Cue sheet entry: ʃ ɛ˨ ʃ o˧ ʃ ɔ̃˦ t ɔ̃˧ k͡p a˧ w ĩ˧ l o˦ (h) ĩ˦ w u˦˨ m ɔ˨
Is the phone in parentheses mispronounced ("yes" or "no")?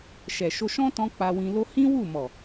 no